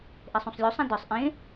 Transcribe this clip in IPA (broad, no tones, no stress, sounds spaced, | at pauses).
ʔ e sˤ ũ sˤ lʲ u sˤ ã d ə˞ sˤ ʔ ẽ